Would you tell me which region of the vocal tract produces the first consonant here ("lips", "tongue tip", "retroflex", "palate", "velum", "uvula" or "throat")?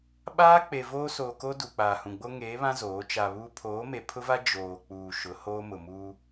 lips